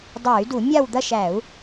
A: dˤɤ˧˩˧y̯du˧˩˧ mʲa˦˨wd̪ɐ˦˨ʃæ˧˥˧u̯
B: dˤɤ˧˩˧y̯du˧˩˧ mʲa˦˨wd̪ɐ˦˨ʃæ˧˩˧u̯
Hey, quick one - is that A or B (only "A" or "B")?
B